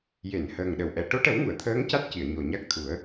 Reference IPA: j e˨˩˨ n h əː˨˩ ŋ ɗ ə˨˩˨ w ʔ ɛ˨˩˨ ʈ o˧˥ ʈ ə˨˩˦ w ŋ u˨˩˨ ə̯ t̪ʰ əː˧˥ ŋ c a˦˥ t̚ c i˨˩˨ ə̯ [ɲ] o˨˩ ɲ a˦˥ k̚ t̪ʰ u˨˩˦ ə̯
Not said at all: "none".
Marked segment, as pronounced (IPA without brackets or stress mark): ɲ